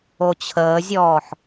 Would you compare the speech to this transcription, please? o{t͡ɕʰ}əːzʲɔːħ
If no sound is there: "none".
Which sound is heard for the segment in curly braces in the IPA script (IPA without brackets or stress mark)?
t͡ɕʰ